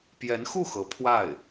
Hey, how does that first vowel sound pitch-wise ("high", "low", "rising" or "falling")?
rising